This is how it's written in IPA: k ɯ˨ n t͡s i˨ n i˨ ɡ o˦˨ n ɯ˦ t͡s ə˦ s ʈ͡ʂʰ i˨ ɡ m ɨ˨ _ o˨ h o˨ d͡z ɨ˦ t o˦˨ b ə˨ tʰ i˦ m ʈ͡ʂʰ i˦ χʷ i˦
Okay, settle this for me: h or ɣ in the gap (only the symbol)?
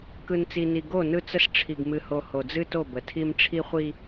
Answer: h